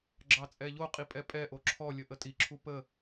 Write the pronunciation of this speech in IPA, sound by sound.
ɡ͡ǁɑt͡sʼɛʎoqʼi pʼɛpʼɛʔo ǁʰɔlʲə ʔətʼiǁʰu pə

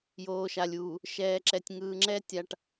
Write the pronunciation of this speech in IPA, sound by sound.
joː˨ʃa˨lʲuː˨ | ʃɛː˨ǁɛ˨tʲ ŋɯː˨ŋ͡ǁɛ˦ tʲa˨ʈ

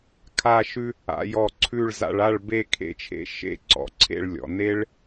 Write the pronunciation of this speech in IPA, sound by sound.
kʰa˥˧ʃʉ˥ | a̰˩˧jɔ˧˩ ǀʰʉ˥˧ɭ za̰˧ɭa˥˧ɭbe˥˧ kʰḛ˥t͡ʃʰḛ˥ ʃḛ˥˧ǀɔ̰˩˧ǀʰḛ˥˧ɭ lʲɔ̰˩˧ ne˥ɭ

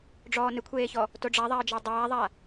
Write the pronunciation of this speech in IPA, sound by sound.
ɖ͡ʐɔːnɪkʷʰeːçɔ | toɖ͡ʐaðˤaə̯d͡ʒɔ dˤaːðˤa

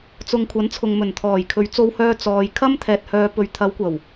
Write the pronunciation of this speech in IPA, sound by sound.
t͡sʊ˨ŋkʷʰɐ˨˥n t͡sʰʊ˨ŋmɵ˨˩nt̪ʰɔː˨˩jkʰɵ˨˧ɥ t͡so˧whœː˧ t͡sɔː˨j kʰɐ˥mt̪ʰɛː˨t̚ hœː˨pɵ˨ɥt̪ʰɐ˨˧wkʷɐ˨˩w

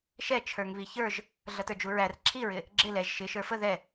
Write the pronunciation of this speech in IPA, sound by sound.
ʃɛ t͡ʃʰə˞ŋβiçə˞ʒ | ɮʌtə˞d͡ʒuɹær ǁʰiɹɪ | ɡ͡ǁɪ lɛʒ ʃɪ ʃə˞fə ðɛ

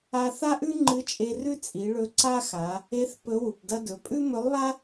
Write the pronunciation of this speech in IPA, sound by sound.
a˧ θa˥ʔʉ˥ŋ͡ǃɨ˧˥t͡ʃʼe˧ rʉ˥t͡sʼi˩˧ɭɵ˧ ǀa˥xa˩˧ | e˧˥θ pɵ˧˥wu˩p dɐ˧dɵ˩˧pʼʉ˥ mɵ˧˥lˠβa˥

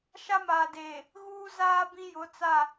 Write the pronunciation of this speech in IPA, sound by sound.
ʃa˦maː˨deː˨ | ɣuː˦zaː˦ bĩ˦jʊ˨˦t͡sa˦˨

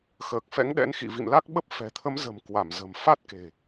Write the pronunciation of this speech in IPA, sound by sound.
xəː˨˩k̚fɛ̰˧˥ŋɗɛ̰˧˥n xḭ˧˨vḭ˧˨mla˦˥k̚ɓə˦˥p̚ fɛ̤˨˩t̪ʰə˨˦mzə̤˨˩m kwa˧˩mzə̤˨˩m fa˦˥t̚ke̤˨˩

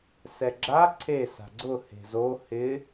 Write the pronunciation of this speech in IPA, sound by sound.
sɛɡ͡ǁa ǀʰe sa̤ɡ͡ǀʊ he̤zo hɪ

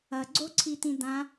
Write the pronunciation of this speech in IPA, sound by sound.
ɐɡ͡ǀoǀʰit̪ĩ d̪ã

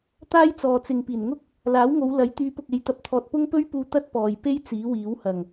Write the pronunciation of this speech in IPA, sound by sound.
t̪aː˥jt͡sɔː˨ t͡sɪ˧ŋ piː˨˩nŋʊ˥k̚ | laː˨˥wŋo˨˧w lɐ˨˥j t̪yː˨˧pʊ˨k̚e˨˧j t̪ɐ˧p̚t̪ʰɔː˧t̚ pʊ˥ŋpɵ˥ɥpuː˧ t̪ɐ˥t̚pɔː˨jpe˥j t͡siː˨˥wiː˨˥whɐ˨˩ŋ

